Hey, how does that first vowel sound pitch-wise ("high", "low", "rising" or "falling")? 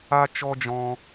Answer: high